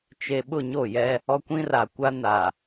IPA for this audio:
t͡ʃe˨ ɓʊ˦˨ɲo˦˨jɛ˦ | ɔ˦kʷĩ˦ra˨ kʷa˦ na˨

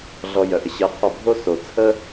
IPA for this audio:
ɮɔ˧jœ˩ʔə˧ ɕɜ˧qʰɔ˥˩ bʱo˥so˩t͡sʰə˥

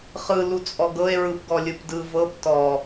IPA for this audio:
χɯ lut͡sʼɔɡɤe̯ ɹɯpɡɔlʲɯpdɯ vɤp tɔ

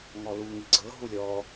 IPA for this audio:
ŋɔlu ŋiɡ͡ǀɤ ɦulʲɔ

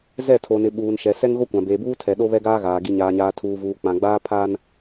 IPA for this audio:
zɛ˦˨tʰo˨nɪ˨ ɓuː˨n ʃɛ˨ sɛ˦ŋɣo˦ kʷã˨beː˨buː˦tʰɛ˨ ɗo˦βɛ˦ɡaː˦ɣaː˨ ɡi˨ɲaː˨ɲaː˨ tʰuː˨vuː˨ k͡pã˨ɡ͡baː˦ pʰaː˦n

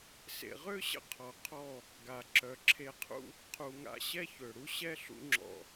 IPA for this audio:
sḛ˨ʁø˦ɕə̰˧ qʰɔ˨qʰɔ˦˨ | ɡa˨ ǁœ˨ǁʰe˧qʰṵ˦ | qʰu˨ŋa̰˧ ɕɛ˦çø˨ɽu˦ ɕɛ˦ ɬṵ˦ŋ͡ǁɔ̰˧

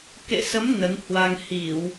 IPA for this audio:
kḛ˧˨sə˨˦m nə˨˦nhwa˧ŋ hi˧˩˨w

